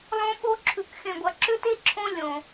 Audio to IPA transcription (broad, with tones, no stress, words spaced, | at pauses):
lˠõ˦ɓo˦ǁʰʉ˨k xẽ˨ɡʷɐ˨ǁʏ˦te˦ ǁʰõ˦ lʲõ˨